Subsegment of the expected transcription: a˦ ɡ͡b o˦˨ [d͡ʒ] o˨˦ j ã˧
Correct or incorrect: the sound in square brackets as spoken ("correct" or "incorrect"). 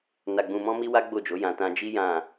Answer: correct